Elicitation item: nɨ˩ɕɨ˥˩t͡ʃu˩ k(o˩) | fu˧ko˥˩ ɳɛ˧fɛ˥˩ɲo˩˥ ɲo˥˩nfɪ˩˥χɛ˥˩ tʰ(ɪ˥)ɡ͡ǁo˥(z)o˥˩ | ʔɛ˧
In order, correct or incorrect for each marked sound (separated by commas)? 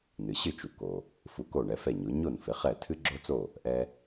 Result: correct, incorrect, incorrect